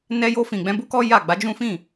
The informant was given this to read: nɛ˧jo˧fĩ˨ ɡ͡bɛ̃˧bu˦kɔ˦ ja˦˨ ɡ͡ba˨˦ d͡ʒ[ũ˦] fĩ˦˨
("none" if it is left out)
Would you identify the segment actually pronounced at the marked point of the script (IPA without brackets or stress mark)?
ũ˦